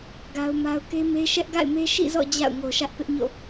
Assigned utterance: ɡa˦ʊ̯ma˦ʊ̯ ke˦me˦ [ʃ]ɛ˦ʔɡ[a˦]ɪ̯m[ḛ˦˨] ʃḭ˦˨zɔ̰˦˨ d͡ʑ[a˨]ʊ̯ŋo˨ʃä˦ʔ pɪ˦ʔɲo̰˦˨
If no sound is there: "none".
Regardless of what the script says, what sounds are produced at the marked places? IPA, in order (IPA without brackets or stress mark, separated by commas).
ʃ, a̰˦˨, e˦, a̰˦˨